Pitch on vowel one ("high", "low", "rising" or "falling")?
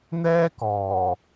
high